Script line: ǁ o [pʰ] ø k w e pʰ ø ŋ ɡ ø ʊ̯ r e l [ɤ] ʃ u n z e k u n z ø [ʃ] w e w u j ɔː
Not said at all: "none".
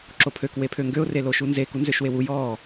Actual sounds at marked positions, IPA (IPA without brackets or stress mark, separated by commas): pʰ, o, ʃ